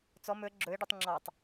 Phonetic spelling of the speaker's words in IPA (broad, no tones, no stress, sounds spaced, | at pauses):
t͡s ɔ m ɵ ə̯ ɡ͡ǁ ɵ ɪ̯ ɖ u tˤ ŋ͡ǁ ɑ tˤ